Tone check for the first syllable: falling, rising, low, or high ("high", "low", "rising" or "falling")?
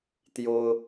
high